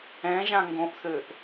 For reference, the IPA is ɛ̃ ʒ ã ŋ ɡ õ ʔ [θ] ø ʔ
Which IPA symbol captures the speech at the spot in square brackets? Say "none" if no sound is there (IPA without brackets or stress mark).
θ